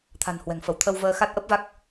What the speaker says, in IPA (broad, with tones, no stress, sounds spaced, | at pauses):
t̪ʰ a̤˨˩ n h w ɛ̤˨˩ ŋ f ə˧˩ w t̪ʰ ə˧ w v əː˧ x a˦˥ t̚ ʔ ə˦˥ p̚ v a˦˥ k̚